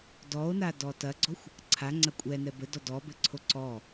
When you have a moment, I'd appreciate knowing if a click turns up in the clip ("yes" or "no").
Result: yes